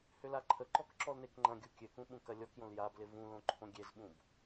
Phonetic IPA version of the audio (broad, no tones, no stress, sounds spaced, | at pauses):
h ʏ l a ǃʰ ə ǃ ɔ k ǁ ɔ l n e k ŋ͡ǃ ɐ̃ ɡʲ u kʲ ø k ũ ɓ ũ k ɐ lʲ ɔ k j õ l j a b l ɪ v ũ l õ ǃʰ õ ɡʲ e z ɓ ũ b